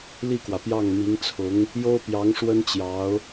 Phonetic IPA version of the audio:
l i˥˩ k w ä˩ p j ɑ˥˩ ŋ m i˧˥ ŋ t͡sʰ ʊ˧˥ ŋ | j o˥ ʊ̯ p j ɑ˧˥ ŋ ʂ w ə˥ n t͡ɕ j ɑ˧˥ ʊ̯

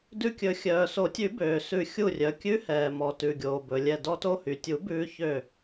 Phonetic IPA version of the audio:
d ʉ˧˩ kʲ ɵ˨˩˦ xʲ œː˩ s o˨˩˦ tʲ ʉ˨˩˦ b øː˩ s ʉ˨˩˦ xʲ u˧˩ rʲ œ˩ kʲ ʉ˧˥ h ɛː˩ m ɔ˩ t ʉ˩ ɡʲ oː˩ b ɵ˩ lʲ ɛ˧˩ d ɔ˧ t o˧ h y˩ tʲ u˨˩˦ b ʉː˧ ç ø˧˩

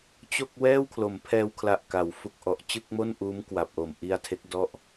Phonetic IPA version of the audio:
t͡ɕ o˥˩ k̚ w ɛː˥˩ w kʰ l o˩˦ m pʰ ɛː˧ w kʰ l a˨˩ ʔ k a˩˦ w f u˨˩ k̚ ʔ ɔ˨˩ ʔ t͡ɕ ɯ˥˩ k̚ m o˥˩ n ʔ uː˦˥ m k w a˨˩ p̚ ʔ o˨˩ m ʔ i˧ a̯ tʰ e˦˥ k̚ d ɔ˥˩ ʔ

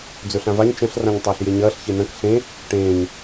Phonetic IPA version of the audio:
d͡z ɵ ɬ ã v a ɲ t͡ʃ ɐ̃ ɬ r ã ɲ tˤ ɐː ɬ j e ɲ ɐː ɬ ç e n ɐ̃ k ɬ ẽ | ʈ ẽː ɲ

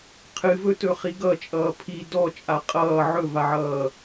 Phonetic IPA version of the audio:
qʰ ɨ v ɵ t ɵ χ i ɡ ʌ t͡ʃʼ ʌː pʰ i d ɔ t͡ʃʼ a qʼ ʌː ʕ ɵ v a ʕ ʌː

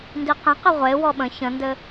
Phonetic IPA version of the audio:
n d i q ə̃ q ɘ ʁʷ e w ɔ ɓ ə̃ ç ə̃ n d ɘ

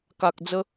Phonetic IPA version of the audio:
k a˨ k̚ d͡z ə˧

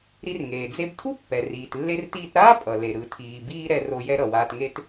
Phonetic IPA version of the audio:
ɾ i˧ r ŋ eː˩ d͡z e˧ b tʰ u˥ pː ɛ˩ r iː˩ t lː e˧ r t iː˧ t ɾ aː˥ pʼ ʌ˩ l e˩ ɾ ɯ˩ tʰ iː˩ b iː˧ ɾ ɛ˧ r o˧ j ɛ˧ ɾ ʌ˩ w aː˧ t ŋ e˥ t

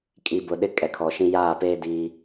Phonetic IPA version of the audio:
kʼ i˨ b ʊ˨ ɗ ɪ˦ kʼ ɛ˨ kʰ ɔ˨ ʃ ĩ˦ j aː˦˨ p eː˦ d iː˦

